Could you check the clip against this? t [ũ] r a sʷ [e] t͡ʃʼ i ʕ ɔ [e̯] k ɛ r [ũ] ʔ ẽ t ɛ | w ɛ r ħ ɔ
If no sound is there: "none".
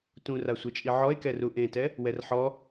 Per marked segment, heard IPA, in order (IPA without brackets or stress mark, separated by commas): ũ, e, e̯, u